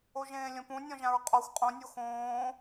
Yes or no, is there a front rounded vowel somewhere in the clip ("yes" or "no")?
no